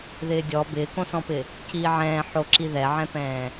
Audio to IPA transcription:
ð ɪː dʲ ɔ b ɪː k õ s ɔ̃ p ɪ | c iː ʕ ɛ̃ː ħ o ǁ i ð ɛ ʕ ɛ̃ p ɛ̃ː

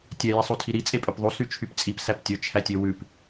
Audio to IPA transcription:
tʲ ɛ j i sˤ u tʰ i ɾ i t͡sʼ e pʼ ø p ðˤ u s y t͡ʃʰ y p t͡sʼ i p s æ p tʲ ɵ t͡ʃʰ æ tʲ ø w ʉ p

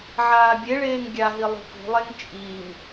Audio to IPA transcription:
ʕ aː bʲ e ɭ eː ŋ ɡʲ a ɦ i lˠ ṳ p ṳ lˠ e ŋ t͡ʃʼ i ŋ

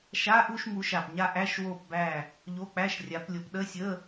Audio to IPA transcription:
ʃ a˧˥˧ ʔ u˥˧ ʃ m u˨˦ ʃ a˨˩ p ɲ a˥˧ ʔ æ˧˥˧ ʃ w o˥˧ p b æ˥˧ | ʎ o˧˥˧ k͡p æ˧˥˧ ʃ rʲ a˨˦ p lʲ o˨˦ p ɗ ə˧˥˧ sʲ ə˧˥˧

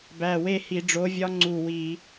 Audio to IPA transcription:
b æ˨˩ w e˦˨ h i˧˩˧ ɖ͡ʐ o˨˦ vʲ ɒ˦ ŋ͡ǀ u˦˨ w i˧˩˧

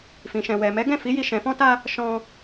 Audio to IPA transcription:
f ĩ˨ ʃ ɛ̃˨ w ɛ˨ m ɛ˨˦ ɡ ɛ̃˦˨ f i˨˦ j i˧ ʃ ɛ̃˨ f ɔ̃˧ t a˧ | ʃ ɔ̃˧

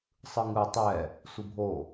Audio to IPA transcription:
sˤ ɯ ŋ ɯ tˤ ɛ | sʷ ɯ bʱ o

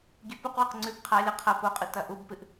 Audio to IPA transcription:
ɡʲ ʉ p u q w ɨ q ŋ͡ǀ ʉ b qʰ a lʲ ɐ qʰ ɐ p o qʼ ɨ t ɐ ʔ u b p ɨ ʔ

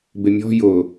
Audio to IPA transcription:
b ɪ mʲ ɔ̤ j ʊ

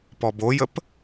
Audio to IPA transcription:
p ɔ b o j ə p

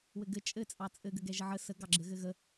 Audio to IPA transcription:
w ɘ ɡ ɘ t͡ʃʼ ɘ t͡sʼ ɑ t͡sʼ ɘ ɡ ɘ ɡ ɛ ʒ ə ʕ ə s ə ɡ ɑ ɡ͡ǁ ɘ ɣ ɘ ɣ ə

